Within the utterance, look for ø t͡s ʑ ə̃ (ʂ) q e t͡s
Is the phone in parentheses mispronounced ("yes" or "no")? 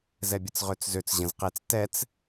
yes